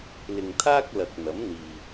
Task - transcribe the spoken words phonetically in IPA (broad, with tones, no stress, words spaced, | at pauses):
lɪ˨ŋt̪ʰaː˥k̚ lɐ˨k̚n̪ɐ˨˥mn̪iː˨